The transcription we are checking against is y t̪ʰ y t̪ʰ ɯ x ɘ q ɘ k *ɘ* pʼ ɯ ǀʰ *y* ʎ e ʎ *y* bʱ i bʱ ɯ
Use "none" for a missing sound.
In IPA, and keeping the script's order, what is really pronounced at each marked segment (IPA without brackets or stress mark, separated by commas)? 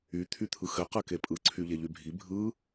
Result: e, y, y